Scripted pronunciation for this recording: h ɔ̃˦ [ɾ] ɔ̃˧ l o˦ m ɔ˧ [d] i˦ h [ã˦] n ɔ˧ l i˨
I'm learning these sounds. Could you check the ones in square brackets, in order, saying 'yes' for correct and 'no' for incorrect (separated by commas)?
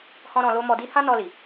yes, yes, yes